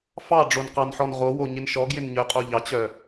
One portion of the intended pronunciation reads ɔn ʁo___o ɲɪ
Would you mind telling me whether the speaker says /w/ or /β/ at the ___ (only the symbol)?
w